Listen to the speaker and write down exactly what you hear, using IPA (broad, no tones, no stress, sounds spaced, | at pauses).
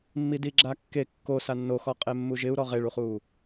mː i d i ɡ͡ǁ a kː e kː o s a nː o x ɔ qʼ e mː u ʒ ɪ u̯ ɾ ɔ ʁ e ɭ u χ uː